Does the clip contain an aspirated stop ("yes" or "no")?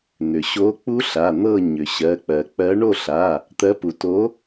no